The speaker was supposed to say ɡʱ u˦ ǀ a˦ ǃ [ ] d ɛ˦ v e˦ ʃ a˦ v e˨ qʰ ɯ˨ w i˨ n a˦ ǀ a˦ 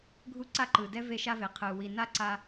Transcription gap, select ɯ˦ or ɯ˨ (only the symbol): ɯ˨